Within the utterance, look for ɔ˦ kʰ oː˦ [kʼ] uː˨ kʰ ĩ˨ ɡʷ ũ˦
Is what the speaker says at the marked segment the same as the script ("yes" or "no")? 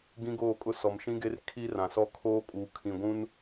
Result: yes